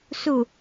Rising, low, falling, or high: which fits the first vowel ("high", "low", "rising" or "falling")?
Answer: low